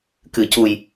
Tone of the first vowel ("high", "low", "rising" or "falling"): low